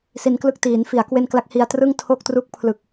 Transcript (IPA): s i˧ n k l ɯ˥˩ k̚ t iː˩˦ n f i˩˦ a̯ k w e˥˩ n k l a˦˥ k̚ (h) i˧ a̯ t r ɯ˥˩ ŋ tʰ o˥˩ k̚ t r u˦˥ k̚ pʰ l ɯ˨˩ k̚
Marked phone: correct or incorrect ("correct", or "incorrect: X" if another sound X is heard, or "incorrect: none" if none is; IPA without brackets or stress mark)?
correct